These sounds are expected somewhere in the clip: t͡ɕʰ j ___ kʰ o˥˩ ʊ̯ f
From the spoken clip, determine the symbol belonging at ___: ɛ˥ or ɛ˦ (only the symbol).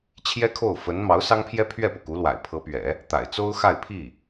ɛ˥